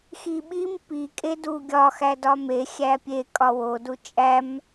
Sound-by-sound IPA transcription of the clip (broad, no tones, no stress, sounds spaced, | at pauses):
x i ɓ i m p i kʼ e d u ɡʲ ɒ x æ d ɒ m e xʲ æ pʲ e kʼ ɒ w o d u t͡ʃʼ æ m